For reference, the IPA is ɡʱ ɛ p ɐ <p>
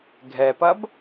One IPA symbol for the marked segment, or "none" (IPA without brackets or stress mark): b